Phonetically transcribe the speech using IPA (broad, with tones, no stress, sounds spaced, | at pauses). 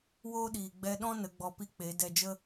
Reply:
w oː˦ ɗ iː˨ ɡ͡b ɛ˧ ɗ ɔ̃˦ n ə˨˦ ɡ͡b ɔ˧ p i˦ k͡p e˨˦ d ɛ˧ d͡ʒ ə˦